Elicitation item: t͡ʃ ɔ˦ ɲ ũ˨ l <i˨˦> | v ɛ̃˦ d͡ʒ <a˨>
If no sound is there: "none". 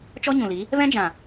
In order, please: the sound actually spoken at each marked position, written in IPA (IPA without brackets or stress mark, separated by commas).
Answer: i˨˦, ã˨